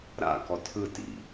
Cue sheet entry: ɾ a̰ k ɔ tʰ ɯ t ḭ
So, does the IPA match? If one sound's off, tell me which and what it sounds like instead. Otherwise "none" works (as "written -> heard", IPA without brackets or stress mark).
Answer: none